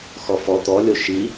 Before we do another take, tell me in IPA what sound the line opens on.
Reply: x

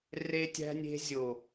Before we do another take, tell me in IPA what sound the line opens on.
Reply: r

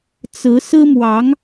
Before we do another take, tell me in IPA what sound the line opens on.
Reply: t͡s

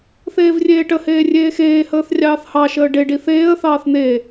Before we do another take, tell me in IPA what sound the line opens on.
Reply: θ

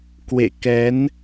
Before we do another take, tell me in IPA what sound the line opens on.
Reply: k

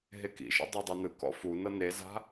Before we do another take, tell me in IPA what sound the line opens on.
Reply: ɦ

